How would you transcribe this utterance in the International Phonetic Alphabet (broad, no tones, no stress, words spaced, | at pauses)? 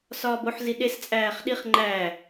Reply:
sɒːboħ ziɗes t͡sʼæːχɗiχ ŋ͡ǃæ